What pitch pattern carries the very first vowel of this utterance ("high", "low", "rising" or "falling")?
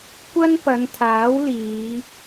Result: high